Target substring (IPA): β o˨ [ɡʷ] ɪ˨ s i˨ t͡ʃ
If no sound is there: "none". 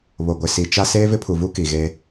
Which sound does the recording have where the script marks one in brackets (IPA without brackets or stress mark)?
ɡʷ